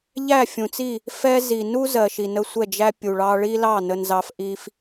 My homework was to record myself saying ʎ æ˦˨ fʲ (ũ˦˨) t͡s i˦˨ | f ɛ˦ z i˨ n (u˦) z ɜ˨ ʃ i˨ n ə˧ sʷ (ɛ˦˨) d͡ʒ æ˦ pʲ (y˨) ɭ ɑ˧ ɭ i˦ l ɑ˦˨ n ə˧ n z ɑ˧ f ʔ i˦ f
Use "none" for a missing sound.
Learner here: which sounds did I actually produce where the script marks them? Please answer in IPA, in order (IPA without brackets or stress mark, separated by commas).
ũ˨, u˦, ɛ˦˨, u˨